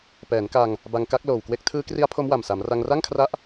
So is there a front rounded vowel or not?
no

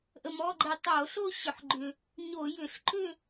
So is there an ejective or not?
no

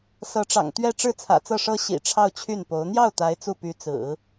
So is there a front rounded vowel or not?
yes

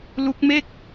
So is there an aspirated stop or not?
no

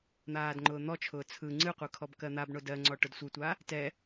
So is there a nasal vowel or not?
no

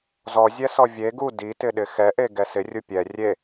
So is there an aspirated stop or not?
no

